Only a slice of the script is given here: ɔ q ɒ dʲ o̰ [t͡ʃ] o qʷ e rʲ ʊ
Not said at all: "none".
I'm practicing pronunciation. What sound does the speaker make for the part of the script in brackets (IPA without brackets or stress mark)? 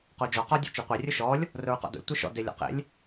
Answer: t͡ʃ